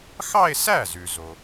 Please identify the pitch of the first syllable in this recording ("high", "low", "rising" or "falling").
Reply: falling